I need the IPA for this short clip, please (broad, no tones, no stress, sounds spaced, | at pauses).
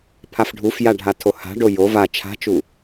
pʰ a f ɖʱ u f j a ɖʱ a tʰ o h a̤ ɖ o j o v a t͡ʃʰ a̤ t͡ʃ u